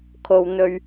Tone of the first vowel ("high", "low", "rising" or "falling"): low